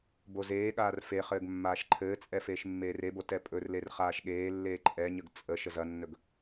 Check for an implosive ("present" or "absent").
present